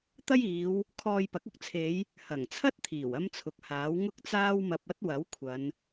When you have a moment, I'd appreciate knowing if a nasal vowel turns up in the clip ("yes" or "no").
no